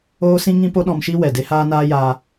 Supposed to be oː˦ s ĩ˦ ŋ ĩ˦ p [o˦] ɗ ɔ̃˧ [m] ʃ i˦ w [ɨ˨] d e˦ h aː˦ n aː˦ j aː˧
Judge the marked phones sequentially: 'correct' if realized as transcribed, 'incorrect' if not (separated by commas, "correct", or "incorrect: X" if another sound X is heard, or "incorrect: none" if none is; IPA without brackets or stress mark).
correct, correct, incorrect: ɛ˨